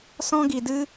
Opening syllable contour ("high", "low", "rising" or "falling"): high